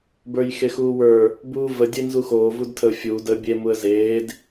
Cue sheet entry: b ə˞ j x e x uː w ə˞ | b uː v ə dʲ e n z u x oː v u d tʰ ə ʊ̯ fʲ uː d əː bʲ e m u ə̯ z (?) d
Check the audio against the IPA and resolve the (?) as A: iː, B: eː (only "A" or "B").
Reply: B